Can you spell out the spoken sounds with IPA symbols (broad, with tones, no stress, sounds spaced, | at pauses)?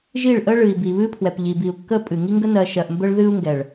ʒ i˦˨ ɭ ʔ ə˦ ɭ ɨ˨ i̯ b i˨ β ɨ˦ pʰ w ɛ˨ p ʎ i˨ b i˨ u̯ kː ə˦ pʼ ɨ˨ ŋ i˦ ŋ ɡ ə˦ n ɜ˨ ʃ ɜ˨ ʔ m b ə˦ ɭ ð ɨ˦ u̯ ŋ ɡ ɛ˨ ɭ